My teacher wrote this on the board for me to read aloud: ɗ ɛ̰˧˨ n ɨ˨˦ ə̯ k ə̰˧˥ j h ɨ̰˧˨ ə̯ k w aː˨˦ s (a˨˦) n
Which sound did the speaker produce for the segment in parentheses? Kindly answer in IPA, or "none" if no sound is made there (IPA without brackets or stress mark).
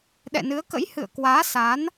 a˨˦